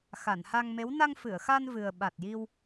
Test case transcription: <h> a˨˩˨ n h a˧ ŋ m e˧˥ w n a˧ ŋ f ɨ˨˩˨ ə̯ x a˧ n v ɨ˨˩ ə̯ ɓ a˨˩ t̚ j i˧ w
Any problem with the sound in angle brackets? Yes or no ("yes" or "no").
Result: yes